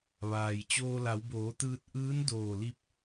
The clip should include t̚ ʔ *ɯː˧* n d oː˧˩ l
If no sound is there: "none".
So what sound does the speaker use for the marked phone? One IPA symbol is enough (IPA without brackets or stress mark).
ɯː˧˥